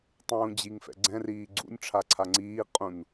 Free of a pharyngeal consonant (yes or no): yes